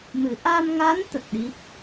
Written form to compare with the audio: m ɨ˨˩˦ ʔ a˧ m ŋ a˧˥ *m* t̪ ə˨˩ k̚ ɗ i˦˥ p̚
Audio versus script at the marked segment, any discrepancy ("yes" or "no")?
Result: yes